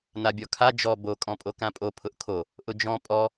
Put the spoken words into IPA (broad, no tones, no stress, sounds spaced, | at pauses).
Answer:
n a bʲ ɔ kʰ a d͡ʒ ɔ b o kʼ ɔ̃ pʼ o k ã pʼ o pʰ ʊ ʔ kʰ o | ʔ ʊ d͡ʒ ɔ̃ pʼ ɔ